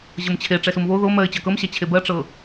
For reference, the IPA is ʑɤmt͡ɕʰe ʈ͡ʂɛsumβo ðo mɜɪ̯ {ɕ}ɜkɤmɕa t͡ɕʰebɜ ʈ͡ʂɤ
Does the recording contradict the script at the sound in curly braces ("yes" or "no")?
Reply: yes